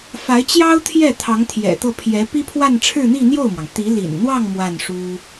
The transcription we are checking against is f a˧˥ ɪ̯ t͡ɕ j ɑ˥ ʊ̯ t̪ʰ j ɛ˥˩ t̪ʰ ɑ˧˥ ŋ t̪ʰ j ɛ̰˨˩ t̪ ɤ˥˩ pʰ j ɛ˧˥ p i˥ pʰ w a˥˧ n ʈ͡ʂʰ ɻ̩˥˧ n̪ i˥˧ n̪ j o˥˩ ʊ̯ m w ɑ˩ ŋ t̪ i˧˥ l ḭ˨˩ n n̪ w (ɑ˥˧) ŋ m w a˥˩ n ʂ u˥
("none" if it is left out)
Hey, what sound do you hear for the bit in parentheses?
ɑ˥˧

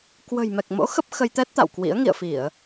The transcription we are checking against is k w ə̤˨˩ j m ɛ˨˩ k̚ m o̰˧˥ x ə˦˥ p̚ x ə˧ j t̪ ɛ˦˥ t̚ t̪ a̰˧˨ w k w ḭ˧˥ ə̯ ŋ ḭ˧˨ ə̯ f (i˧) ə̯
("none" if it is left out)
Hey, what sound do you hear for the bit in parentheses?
i˧˩˨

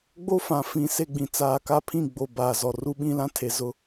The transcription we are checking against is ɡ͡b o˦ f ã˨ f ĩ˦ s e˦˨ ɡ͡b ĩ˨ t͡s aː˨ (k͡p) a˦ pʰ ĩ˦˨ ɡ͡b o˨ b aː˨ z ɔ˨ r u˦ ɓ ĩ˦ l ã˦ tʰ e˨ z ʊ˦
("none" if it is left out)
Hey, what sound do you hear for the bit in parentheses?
k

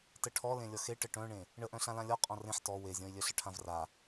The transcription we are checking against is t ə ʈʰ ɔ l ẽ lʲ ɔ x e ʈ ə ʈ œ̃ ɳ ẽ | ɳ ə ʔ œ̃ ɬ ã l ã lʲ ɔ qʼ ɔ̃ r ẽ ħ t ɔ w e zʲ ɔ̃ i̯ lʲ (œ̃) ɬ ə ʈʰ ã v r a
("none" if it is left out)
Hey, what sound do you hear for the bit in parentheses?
œ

